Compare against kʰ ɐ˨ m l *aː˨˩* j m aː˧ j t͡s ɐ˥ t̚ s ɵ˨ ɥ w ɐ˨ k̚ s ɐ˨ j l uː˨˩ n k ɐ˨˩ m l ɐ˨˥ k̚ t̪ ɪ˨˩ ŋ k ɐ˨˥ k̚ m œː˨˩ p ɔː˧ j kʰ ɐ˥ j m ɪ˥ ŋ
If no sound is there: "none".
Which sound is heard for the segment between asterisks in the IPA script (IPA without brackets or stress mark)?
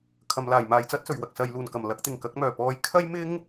aː˨˩